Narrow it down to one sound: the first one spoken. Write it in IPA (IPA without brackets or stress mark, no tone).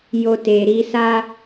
j